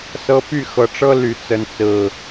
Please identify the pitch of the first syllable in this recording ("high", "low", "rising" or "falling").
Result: high